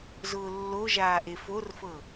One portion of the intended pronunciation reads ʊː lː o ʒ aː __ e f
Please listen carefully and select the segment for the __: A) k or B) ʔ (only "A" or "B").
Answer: B